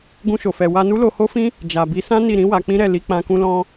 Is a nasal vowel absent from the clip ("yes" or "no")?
no